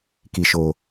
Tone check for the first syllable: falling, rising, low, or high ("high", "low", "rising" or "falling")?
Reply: low